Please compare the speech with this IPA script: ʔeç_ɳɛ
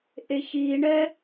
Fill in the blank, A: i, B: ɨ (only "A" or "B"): A